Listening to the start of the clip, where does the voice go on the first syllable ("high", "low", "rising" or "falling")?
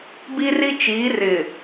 high